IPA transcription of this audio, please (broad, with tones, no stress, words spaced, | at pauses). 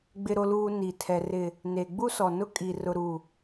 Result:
ɡ͡bɪ˨ɾo˨luː˨ ni˨tʰɛ˨ rɪ˨ | ne˨ɡ͡bu˦sɔ˨nʊ˦ kʼi˨ rʊ˨ɾu˨